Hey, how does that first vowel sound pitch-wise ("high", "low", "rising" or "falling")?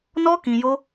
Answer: high